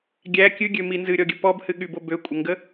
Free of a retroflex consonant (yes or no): yes